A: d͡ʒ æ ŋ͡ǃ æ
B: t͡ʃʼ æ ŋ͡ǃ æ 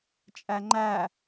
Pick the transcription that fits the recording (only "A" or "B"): B